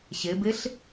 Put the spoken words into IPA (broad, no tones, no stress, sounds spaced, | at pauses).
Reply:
ɕ e b e ɬ